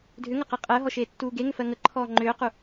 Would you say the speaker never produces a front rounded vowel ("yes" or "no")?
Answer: no